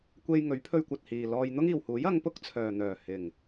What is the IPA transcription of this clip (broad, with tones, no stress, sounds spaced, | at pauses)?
kʷ e˧ j ŋ ɵ˨˥ ɥ pʰ ɵ˧ ɥ kʷ ɐ˨ t̚ h iː˨ l ɔː˧ j n̪ ʊ˥ ŋ iː˨ w h uː˨˥ j ɐ˨˧ ŋ p ʊ˥ k̚ t͡sʰ œː˨ n̪ œː˨˩ h ɪ˨˩ ŋ